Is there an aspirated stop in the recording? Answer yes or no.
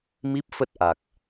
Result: no